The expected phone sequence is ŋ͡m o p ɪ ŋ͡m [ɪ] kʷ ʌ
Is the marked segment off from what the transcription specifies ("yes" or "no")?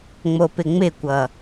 no